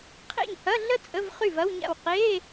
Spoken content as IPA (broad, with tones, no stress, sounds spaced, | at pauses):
qʰ ḛ˥˩ ɲ h ɐ˧˥˧ ɮ ə˥ t͡sʼ ə˧˥˧ v χ y˥˩ v ɐ˧˥˧ w ɲ a̰˥˩ w q e˧˥˧